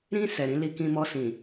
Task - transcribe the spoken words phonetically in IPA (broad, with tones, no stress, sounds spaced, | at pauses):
ɾ ĩ˧ s ɛ˨ ɾ ĩ˨˦ l i˧ k ĩ˧ m ɔ˧ s ĩ˨